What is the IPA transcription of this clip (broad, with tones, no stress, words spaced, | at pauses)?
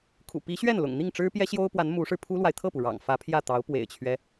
kʰṵ˨˩pi˧˥ɕɥɛ˥˩n lʊ̰˨˩ŋn̪i˥˩ŋ ʈ͡ʂɻ̩˥pjɛ˥ɕjo˥ʊ̯pwa˧˥n mu˧˥ʂɻ̩˧ pʰu˥lwa˨ɪ̯ t̪ʰɤ˥˩pu˩ɻɑ̰˨˩ŋ fä˧˥pʰjä˥˩t̪ɑ˧˥ʊ̯ pwḛ˨˩ɪ̯t͡ɕʰɥɛ˦